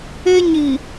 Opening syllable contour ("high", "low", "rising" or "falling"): high